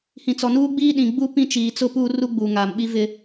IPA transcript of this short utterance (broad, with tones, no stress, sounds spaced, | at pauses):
h ĩ˨ t͡s ɔ˨ n uː˦ ɡ͡b iː˦ ɗ ĩ˨ ɡ͡b u˦ p ĩ˦ t͡ʃ iː˨ t͡s ʊ˦ p uː˦ r u˦ ɡ͡b uː˨ ŋ aː˨ m ɓ i˦ v ɪ˦